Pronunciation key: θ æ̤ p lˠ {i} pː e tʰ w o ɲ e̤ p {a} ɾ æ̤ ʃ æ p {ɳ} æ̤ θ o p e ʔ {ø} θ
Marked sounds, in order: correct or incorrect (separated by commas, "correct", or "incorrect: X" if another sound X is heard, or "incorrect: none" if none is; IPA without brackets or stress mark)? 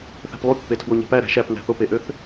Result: incorrect: y, incorrect: æ, incorrect: n, correct